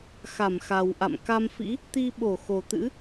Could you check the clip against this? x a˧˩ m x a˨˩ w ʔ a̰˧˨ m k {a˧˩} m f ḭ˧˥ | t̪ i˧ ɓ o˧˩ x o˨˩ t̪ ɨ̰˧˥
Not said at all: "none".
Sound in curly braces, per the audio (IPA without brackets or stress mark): a˧